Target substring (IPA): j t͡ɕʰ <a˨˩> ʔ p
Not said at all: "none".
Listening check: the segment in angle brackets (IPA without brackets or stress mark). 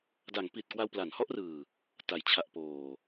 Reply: a˨˩